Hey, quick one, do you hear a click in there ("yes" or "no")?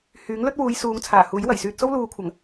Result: no